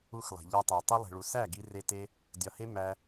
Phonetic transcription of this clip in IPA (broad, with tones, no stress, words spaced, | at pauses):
u˧xlˠe̤˨ʎæ˧tˤæ˨ tˤu˧lˠe̤˨ɭu˨ sæ˦˨ɡi˧re˧te˦ | dʲɒ˨he˦ mæ˦